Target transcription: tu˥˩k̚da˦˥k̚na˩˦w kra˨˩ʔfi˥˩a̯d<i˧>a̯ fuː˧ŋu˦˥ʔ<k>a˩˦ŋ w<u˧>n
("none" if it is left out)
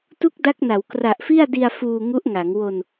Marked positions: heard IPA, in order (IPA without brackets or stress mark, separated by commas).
i˧, ŋ, o˧